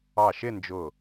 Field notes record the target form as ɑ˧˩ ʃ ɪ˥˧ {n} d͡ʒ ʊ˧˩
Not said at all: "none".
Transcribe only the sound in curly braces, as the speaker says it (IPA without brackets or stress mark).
n